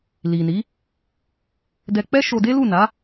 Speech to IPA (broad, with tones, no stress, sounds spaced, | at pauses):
l i˨ n i˨˦ | d ɛ˧ k͡p ɛ˦ ʃ o˧ d e˦ l u˦˨ n a˨˦